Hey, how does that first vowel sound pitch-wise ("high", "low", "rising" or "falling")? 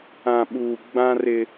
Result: low